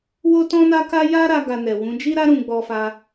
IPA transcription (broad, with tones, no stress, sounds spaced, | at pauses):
w o˦ t ɔ̃˦ n a˦ k a˦ j a˦ ɾ a˧ ɡ a˧ n ɛ˨ w ũ˨˦ d͡ʒ i˦ ɾ a˦ ɾ ũ˧ ɡ͡b ɔ˧ f a˧